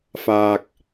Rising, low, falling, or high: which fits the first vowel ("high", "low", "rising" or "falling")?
low